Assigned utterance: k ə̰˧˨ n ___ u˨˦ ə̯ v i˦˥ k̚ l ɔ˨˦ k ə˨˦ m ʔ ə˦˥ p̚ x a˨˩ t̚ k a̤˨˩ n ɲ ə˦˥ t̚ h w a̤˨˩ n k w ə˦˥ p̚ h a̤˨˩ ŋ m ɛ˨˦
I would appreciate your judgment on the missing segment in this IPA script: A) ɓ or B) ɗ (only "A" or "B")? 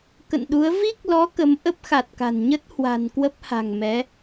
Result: B